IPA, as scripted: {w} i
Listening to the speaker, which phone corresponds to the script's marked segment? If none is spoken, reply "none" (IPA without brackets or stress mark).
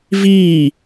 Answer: v